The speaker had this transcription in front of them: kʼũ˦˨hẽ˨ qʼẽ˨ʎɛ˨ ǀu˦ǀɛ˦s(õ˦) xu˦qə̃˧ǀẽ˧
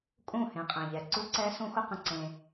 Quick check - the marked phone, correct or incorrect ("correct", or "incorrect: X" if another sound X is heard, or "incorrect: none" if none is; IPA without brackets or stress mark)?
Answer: incorrect: ũ˦